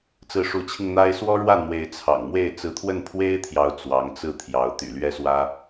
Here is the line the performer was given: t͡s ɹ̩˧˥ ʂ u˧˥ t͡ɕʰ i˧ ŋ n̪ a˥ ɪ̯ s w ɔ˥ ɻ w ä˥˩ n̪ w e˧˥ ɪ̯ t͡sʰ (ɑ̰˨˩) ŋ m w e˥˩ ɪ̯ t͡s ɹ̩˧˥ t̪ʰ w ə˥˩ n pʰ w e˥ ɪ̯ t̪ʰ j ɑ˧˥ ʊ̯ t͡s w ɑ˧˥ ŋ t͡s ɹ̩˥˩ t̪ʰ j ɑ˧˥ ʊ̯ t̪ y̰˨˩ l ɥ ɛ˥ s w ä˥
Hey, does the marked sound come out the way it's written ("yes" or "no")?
yes